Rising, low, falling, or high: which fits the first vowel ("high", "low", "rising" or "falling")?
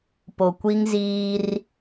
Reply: low